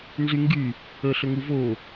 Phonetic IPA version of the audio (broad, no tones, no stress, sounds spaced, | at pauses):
n z y ŋ ɡ y | ə ɬ ə ŋ u v o